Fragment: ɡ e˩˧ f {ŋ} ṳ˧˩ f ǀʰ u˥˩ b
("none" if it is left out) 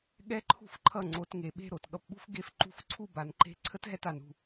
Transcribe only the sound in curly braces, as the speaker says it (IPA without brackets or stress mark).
ǃ